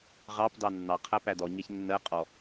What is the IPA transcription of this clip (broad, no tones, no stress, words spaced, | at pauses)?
ʁɑp dɑnːɑqʰæ pædɔɲɛç nːɜ qʼɔ